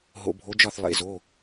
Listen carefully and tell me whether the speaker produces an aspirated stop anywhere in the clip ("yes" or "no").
no